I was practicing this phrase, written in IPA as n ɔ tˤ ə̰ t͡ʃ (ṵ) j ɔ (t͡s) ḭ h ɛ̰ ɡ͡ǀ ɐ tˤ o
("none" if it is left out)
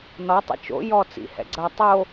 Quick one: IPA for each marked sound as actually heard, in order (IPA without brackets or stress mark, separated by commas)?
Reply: o̰, t͡s